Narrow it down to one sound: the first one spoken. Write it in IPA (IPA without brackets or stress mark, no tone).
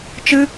t͡ʃ